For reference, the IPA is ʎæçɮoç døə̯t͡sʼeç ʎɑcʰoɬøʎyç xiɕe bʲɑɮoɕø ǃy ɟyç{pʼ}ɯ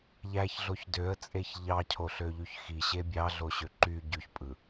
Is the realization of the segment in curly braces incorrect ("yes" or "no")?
no